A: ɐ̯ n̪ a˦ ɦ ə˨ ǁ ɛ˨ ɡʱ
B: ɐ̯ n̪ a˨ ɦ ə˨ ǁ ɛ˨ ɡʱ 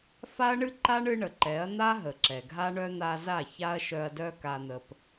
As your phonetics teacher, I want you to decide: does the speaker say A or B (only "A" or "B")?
A